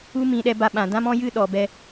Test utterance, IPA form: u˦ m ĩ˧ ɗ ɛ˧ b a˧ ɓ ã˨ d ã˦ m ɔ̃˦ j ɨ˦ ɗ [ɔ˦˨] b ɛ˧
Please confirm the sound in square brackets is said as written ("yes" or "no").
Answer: no